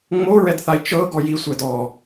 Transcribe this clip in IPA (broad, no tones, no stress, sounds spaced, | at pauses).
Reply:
ŋ͡m o ɹ ɛ d θ a i̯ t͡ʃ ɤ ɡ ɔ j i sʷ ɛ d ɔ